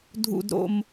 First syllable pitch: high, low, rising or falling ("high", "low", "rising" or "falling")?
low